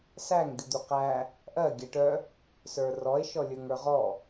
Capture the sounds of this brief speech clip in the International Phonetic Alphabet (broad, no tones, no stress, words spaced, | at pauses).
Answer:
sæŋ d̪id̪uqæ | ʔɜ ɡʲæʈœ | sə˞rɔe̯ ʃɔlʲə˞ŋə˞ʁɔ